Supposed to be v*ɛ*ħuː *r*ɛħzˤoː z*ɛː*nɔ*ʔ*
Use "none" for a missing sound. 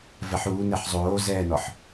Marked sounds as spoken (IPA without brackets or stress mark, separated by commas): ɛ, n, ɛː, ħ